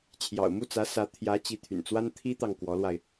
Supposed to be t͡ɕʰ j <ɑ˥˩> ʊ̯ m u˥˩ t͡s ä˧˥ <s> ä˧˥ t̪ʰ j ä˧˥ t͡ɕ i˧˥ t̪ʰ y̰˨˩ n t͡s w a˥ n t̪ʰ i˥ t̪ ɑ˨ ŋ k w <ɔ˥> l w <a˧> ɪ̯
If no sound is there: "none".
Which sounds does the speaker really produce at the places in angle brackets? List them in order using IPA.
ɑ̰˨˩, s, ɔ˧˥, a˧

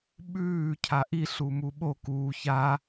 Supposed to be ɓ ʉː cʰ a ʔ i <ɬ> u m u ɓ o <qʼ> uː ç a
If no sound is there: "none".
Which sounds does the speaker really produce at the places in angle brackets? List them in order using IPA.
ɬ, k

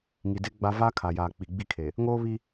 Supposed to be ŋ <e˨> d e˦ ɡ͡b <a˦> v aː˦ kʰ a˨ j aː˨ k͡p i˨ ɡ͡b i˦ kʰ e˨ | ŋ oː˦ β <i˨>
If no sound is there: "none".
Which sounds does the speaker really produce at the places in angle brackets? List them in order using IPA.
i˨, a˦, i˦

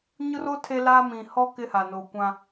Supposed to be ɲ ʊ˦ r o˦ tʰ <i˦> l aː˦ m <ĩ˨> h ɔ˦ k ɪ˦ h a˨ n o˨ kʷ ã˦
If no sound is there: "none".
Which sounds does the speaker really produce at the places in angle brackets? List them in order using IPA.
e˦, ĩ˨

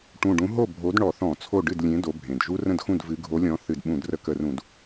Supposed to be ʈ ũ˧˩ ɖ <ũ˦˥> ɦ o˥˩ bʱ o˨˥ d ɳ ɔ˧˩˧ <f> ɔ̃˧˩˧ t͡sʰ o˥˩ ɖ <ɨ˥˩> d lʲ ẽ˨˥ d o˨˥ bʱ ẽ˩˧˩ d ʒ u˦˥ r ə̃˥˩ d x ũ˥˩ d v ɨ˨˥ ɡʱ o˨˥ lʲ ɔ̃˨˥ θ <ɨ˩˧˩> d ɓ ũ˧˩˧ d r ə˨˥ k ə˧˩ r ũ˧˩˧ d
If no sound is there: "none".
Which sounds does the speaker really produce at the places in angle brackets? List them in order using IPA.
ũ˨˥, θ, ɨ˥˩, ɨ˧˩˧

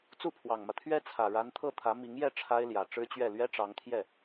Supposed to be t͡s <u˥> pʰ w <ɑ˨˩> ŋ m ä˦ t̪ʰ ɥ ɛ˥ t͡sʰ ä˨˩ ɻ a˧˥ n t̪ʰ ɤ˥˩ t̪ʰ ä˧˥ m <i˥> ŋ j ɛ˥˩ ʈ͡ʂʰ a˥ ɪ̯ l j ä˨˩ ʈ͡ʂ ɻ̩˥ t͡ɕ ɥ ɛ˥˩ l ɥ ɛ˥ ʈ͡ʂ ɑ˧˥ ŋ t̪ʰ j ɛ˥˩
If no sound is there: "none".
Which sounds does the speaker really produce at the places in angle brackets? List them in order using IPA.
u˥˩, ɑ˨˩, i˧˥

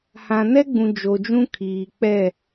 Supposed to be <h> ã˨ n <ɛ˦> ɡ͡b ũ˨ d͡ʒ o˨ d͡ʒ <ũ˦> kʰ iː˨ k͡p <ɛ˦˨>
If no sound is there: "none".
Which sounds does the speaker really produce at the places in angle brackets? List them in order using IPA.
h, ɛ˦, ũ˦, ɛ˦˨

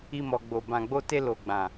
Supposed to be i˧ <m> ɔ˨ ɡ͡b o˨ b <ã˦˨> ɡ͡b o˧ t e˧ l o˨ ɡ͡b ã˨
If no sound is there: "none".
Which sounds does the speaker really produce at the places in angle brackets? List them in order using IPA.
m, ã˨

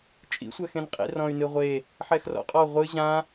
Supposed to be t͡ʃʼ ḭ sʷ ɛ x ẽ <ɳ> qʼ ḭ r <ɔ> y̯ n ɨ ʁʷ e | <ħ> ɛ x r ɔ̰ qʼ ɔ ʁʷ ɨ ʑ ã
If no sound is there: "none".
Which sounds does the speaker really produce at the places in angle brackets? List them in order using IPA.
n, ɔ̃, ħ

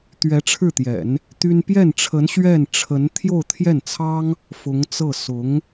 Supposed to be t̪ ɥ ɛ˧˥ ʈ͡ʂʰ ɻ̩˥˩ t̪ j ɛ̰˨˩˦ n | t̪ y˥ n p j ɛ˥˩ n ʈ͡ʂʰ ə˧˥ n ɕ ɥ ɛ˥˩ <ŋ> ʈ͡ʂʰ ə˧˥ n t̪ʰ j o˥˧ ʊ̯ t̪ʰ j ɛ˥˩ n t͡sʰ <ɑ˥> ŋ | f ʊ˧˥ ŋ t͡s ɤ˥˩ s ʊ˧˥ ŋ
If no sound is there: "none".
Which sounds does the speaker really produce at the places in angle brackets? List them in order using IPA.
n, ɑ˥

